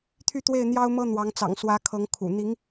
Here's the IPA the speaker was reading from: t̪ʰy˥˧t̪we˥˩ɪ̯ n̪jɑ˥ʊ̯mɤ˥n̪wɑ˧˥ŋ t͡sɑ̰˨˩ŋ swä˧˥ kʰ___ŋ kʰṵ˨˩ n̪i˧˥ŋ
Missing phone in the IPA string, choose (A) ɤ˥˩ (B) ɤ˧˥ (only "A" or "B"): B